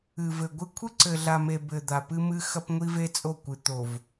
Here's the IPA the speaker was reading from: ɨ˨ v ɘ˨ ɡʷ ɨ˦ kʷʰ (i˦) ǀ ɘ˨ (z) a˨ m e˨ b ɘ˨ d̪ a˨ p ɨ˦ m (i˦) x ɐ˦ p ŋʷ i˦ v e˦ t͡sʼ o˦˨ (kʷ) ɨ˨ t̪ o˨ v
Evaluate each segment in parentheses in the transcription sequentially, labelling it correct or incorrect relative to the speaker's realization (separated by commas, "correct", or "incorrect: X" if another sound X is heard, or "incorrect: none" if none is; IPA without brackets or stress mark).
incorrect: ɨ˦, incorrect: ɮ, incorrect: ɨ˦, correct